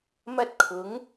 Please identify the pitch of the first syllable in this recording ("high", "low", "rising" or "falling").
high